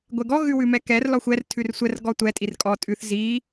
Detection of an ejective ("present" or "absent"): present